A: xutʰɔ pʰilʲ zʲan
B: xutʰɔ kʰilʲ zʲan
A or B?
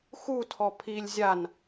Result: A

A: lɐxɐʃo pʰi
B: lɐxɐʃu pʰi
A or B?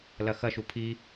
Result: B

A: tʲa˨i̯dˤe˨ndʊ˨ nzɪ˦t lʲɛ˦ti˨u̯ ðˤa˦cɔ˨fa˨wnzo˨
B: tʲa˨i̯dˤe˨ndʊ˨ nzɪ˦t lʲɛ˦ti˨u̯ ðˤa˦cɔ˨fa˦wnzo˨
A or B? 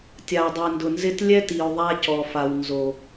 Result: A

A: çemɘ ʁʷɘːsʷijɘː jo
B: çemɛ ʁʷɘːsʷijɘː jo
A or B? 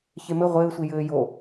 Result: A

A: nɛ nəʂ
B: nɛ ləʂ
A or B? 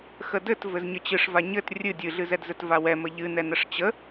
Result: A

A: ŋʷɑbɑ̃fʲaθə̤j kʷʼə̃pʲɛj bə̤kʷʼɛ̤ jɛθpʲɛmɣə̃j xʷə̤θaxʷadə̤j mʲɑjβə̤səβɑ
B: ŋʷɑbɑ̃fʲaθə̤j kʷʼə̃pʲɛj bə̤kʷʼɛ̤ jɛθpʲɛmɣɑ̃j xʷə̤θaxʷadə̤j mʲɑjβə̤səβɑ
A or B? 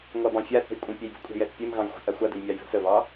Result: B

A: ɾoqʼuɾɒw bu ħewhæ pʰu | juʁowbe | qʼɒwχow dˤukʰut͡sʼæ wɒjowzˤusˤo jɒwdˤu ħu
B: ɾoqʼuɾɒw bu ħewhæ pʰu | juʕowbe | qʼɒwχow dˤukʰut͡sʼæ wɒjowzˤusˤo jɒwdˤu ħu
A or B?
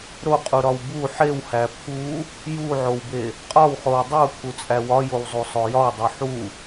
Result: B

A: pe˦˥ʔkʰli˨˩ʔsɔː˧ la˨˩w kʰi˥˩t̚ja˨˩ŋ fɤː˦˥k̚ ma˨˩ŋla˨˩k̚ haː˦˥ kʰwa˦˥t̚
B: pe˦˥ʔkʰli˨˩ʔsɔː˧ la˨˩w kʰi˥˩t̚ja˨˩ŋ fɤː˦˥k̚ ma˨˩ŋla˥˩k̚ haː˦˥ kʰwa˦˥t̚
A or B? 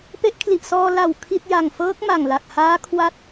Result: A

